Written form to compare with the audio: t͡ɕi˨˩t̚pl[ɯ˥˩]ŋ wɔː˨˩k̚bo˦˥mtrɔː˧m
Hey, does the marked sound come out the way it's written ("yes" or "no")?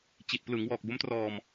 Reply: no